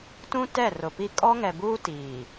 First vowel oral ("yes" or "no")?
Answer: no